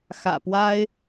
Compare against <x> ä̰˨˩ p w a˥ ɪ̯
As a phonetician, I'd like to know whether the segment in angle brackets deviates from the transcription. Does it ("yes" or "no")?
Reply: no